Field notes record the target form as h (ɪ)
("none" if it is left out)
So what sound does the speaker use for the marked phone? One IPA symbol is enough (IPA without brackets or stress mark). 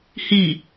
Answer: i